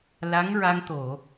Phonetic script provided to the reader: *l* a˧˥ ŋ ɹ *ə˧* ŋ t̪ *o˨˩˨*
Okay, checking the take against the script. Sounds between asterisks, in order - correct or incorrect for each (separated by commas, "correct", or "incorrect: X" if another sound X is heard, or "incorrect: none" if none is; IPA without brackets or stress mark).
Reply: correct, incorrect: a˧, correct